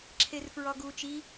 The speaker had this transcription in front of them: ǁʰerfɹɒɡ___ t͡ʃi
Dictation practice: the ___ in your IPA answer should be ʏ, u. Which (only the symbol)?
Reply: u